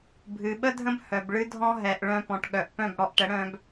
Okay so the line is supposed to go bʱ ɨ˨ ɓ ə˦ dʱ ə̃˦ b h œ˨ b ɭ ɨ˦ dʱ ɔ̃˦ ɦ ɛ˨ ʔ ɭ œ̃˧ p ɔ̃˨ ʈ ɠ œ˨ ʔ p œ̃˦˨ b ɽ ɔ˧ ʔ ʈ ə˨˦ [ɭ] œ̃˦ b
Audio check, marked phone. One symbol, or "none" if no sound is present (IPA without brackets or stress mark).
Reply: ɽ